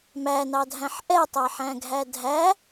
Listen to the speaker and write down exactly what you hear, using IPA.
m æ n ɑ dʱ æ̃ ħ ʔ ɛ tˤ æ ħ æ̃ ɡʱ æ dʱ æ

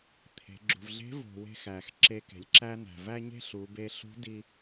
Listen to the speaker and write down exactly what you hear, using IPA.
t̪ʰ e̤˩˧ ɡ͡ǁ ṳ˩ v ɮ e̤˧˥ v o̤˩ w e̤˧ x æ˩ x ǁ e˧ k e̤˩ lʲ ǁ æ˥ n̪ æ̤˩ v æ˥ ɲ e̤˥ ɬ u˩˧ b e˧ ɬ ṳ˧˥ d i˧

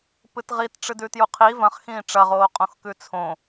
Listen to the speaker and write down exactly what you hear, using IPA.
p ɨ t ʁ i t ʈ͡ʂ ɨ d ʉ t j u qʰ i v ɐ̃ χ x ĩː ʈ͡ʂ ɐ ʁ oː qʼ õ x k ʉ t͡sʰ õ

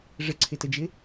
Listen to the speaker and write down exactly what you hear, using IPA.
ʐ ə ǀʰ ɪ t ə d͡ʒ ɪ

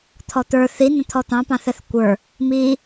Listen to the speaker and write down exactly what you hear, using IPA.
t̪ʰ ɔ t̪ ə˞ θ i n ə̃ t̪ʰ ɔ t̪ ɑ̃ p ɑ̃ θ ɛ θ kʷ ə˞ | m i

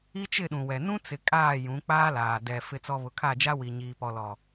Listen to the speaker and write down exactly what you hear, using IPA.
i˦ t͡ʃ ɪ˦˨ ɗ ũ˨ w ɛ˨ n ũ˦ t͡s ɪ˨ kʼ aː˦˨ j ũ˨˦ k͡p aː˦ l aː˨ d ɛ˨ f ɪ˨ t͡s ɔ˨ β ʊ˨ kʰ a˦˨ d͡ʒ a˦ w i˨ ɲ iː˨ p ɔ˨ l ɔ˨

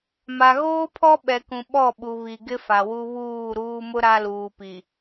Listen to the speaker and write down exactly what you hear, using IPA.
m a˨ ɣ oː˦ pʰ ɔ˦ ɓ ɛ˨ k ũ˨ ɓ ɔ˦˨ ɓ u˨ β i˨ ɡ ɪ˦ f a˨ w u˦ β uː˦˨ ɾ uː˦ m ʊ˦ ɾ a˦ l uː˨ p i˨

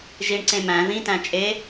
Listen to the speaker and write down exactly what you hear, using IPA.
ʒ i ɳ ǀ ẽ m æ̃ ð ĩ t æ̃ t͡ʃʼ e

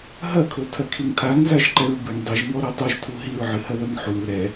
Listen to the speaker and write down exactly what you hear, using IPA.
ɦ ɐ kʰ o tʰ ɐ kʰ i ŋ tʰ a ŋ z a ʒ ǃ ɛ ɹ b ɨ ŋ dˤ i ʒ ŋ ɔ ɾ ɛ tˤ u ʒ tʰ u ɦ i ɹ ʕ ɨ h ɐ ð ɐ ŋ ħ u ɹ ɾ ɛ

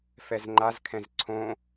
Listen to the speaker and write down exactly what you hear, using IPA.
f ɛ z ŋ͡ǃ a z kʰ ɛ̃ z ǀʰ õ

